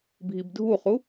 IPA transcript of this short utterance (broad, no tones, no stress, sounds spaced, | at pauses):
bʱ i b dʱ u χ u